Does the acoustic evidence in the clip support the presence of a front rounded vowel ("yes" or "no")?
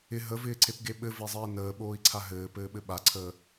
no